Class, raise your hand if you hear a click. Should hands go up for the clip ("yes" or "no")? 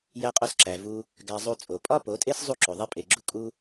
yes